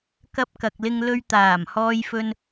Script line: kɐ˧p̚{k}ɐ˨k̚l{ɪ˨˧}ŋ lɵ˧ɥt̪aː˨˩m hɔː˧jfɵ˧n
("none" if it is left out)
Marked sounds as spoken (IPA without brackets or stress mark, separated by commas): k, ɪ˧